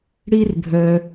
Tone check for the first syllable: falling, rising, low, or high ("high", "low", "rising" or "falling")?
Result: high